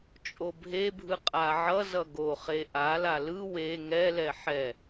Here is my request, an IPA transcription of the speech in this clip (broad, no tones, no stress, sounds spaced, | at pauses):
t͡ʃʼ o bʱ e bʱ ɯ qʼ a ʕ ʌ z ʌ ɡ o χ e ʔ a l a l ɯ w e ŋ ɛ l ɛ ħ ɛ